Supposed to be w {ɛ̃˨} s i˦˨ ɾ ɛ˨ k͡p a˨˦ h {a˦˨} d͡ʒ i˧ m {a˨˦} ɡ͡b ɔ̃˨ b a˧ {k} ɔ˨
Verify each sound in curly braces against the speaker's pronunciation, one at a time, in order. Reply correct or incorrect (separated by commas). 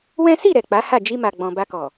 incorrect, correct, incorrect, correct